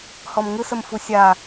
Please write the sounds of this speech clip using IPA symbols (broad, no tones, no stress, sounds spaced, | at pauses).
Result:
h ɔ m ŋ ɯ s ə m f u sʲ a